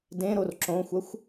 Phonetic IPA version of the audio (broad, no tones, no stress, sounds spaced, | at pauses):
d ẽ ɾ o r ǁ õ xʷ ɐ xʷ